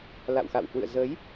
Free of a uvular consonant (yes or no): yes